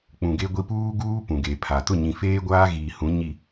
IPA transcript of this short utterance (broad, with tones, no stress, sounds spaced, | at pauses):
k͡p ũ˨ ɡ e˦ ɡʷ i˦ p uː˦ ɡ uː˦ p ũ˨ ɡ e˨ pʰ a˨ t ʊ˦˨ ɲ ĩ˨ f eː˦ ɡʷ aː˦ ɣ iː˨ h ũ˨˦ ɲ i˨